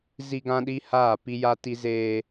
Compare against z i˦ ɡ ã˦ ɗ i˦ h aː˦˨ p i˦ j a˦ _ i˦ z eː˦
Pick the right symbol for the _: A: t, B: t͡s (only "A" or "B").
A